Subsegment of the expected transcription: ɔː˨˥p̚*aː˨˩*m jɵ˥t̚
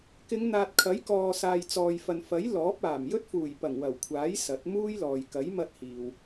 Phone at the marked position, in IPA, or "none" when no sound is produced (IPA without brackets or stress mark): aː˨˩